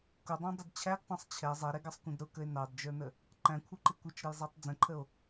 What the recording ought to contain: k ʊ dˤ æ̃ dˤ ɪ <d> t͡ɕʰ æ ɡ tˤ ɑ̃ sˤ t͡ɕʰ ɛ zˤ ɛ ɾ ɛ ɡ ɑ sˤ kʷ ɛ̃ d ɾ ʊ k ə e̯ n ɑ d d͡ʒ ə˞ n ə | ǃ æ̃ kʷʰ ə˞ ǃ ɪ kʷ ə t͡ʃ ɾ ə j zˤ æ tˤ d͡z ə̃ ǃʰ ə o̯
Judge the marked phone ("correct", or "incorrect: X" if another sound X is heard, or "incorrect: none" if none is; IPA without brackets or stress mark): correct